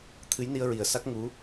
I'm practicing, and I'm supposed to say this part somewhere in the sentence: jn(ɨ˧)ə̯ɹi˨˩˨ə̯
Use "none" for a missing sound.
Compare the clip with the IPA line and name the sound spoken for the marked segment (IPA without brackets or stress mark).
i˧